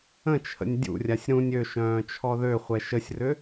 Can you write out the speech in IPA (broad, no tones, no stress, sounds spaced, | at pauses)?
ə̃ t͡ʃʰ ə̰ nʲ dʲ ṵ rʲ a sʲ ɾ ũ nʲ ø ʃ œ̃ː t͡ʃʰ ɔ ð ø χʷ ɛ ʃ ə sʲ r ʏ